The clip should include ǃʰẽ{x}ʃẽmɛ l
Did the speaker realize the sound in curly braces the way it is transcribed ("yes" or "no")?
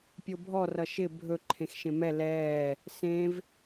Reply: yes